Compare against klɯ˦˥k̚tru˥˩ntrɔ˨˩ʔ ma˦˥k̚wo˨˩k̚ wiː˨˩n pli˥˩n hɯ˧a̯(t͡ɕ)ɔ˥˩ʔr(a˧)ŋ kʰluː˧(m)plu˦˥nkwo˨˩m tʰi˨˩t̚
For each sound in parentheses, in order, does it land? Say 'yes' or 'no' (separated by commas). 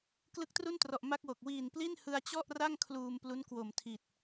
yes, no, yes